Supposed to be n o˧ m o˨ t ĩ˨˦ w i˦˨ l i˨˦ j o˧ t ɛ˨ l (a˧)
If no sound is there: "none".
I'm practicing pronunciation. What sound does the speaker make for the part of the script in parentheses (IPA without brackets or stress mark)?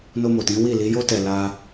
a˧